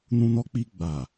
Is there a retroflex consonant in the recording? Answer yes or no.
no